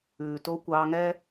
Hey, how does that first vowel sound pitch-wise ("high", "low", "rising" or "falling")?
low